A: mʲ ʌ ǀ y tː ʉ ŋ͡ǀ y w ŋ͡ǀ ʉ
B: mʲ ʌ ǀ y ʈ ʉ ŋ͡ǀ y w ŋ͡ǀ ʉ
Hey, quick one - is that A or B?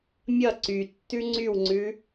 A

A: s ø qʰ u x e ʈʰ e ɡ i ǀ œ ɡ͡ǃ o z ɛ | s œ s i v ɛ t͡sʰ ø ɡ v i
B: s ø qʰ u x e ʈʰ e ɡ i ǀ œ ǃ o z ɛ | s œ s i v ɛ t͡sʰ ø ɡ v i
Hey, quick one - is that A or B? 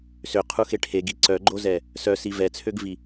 A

